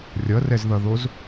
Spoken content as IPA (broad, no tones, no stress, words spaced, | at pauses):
rʲʌrɛzðʌðoz